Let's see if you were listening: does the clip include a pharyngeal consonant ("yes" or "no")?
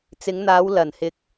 no